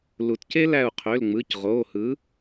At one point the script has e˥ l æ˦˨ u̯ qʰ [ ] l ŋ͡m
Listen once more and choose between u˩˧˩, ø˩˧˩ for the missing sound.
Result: ø˩˧˩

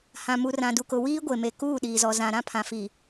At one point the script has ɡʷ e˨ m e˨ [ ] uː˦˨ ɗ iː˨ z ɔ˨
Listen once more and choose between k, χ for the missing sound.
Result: k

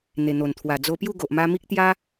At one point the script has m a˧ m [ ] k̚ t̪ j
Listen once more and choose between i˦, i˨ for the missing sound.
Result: i˦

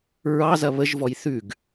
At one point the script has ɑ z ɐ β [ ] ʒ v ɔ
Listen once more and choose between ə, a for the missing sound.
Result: ə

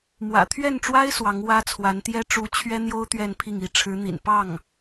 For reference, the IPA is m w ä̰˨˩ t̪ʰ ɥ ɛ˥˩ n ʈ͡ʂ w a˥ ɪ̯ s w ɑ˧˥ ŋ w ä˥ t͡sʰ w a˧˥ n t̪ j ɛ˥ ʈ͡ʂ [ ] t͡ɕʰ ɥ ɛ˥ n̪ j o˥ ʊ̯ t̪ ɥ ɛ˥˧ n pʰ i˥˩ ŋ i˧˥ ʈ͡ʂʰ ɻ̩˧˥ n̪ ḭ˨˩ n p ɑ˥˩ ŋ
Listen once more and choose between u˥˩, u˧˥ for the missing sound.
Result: u˧˥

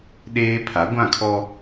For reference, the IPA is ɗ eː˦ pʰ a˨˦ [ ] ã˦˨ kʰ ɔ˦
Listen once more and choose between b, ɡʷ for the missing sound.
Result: ɡʷ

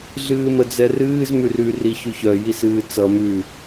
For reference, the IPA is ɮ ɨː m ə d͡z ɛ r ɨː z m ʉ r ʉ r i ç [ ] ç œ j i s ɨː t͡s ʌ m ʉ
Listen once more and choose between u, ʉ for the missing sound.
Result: ʉ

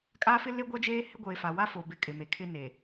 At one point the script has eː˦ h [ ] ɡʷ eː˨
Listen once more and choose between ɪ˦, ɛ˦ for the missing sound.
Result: ɪ˦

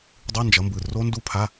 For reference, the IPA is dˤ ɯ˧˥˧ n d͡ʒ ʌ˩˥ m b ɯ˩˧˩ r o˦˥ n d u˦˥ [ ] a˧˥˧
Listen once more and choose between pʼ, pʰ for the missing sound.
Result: pʰ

